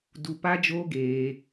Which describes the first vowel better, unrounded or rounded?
rounded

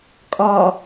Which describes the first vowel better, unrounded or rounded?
rounded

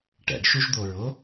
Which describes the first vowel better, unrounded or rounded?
unrounded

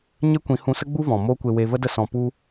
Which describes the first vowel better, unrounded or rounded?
unrounded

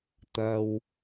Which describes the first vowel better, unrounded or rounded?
unrounded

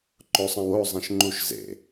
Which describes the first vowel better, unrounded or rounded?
rounded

